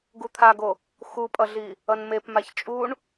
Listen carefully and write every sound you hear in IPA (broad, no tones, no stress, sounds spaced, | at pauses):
ɡ u t̪ʰ a ɡ o | x u pʼ ʌ ɮ i | ʌ n m e p m a ç t͡ʃʼ u ɳ